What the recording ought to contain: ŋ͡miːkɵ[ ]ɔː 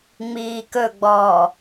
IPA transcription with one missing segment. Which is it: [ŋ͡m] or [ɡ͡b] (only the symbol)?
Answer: ɡ͡b